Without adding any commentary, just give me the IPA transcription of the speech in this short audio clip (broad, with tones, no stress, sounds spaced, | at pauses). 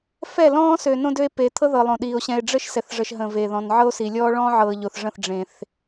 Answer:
f ɛ˦˨ l ɔ̃ː˦ s ø˨ n õ˦ d ø˦ e̯ p e˨ t̪ʰ ɤ˦ ð ɤ˨ lˠ õ˨ ɗ iː˨ o̯ ɕ ɛ̃˨ e̯ ɖ͡ʐ ə˦ ʃ s ɛ˨ θ ʐ ə˨ ʃ ɦ ə̃˨ v e˨ ð ɔ̃˨ n ʕ ɤ˦ o̯ s i˨ lʲ ɔː˦ ɭ ɔ̃ː˦ ʕ ɤ˨ ʎ o˨ θ ʐ ə̃˦˨ θ ɖ͡ʐ ẽ˦ θ